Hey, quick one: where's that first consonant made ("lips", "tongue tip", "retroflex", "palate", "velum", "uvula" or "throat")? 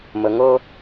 lips